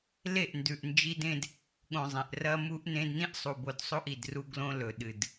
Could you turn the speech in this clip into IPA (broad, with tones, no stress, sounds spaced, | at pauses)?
l e˦˨ ʔ n d ʉ˨ ʔ n d͡ʒ i˦ d ẽ˦ d | ɠ õ˨ zˤ ẽ˨ ʔ r ɐ˦ m u˦ ʔ n ẽ˦ d n ĩ˦ ʔ sˤ u˨ b o˨ d sˤ o˦ ʔ i˨ d r u˦ ɡ l õ˦ l ɵ˨ ɗ ɨ˨ d